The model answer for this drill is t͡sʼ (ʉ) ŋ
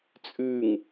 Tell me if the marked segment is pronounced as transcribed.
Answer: yes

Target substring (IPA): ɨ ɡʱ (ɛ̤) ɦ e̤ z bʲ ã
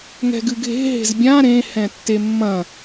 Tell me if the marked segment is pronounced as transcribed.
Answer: no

